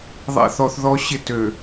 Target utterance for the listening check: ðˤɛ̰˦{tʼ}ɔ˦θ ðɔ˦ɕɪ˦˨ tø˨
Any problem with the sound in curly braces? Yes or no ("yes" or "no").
yes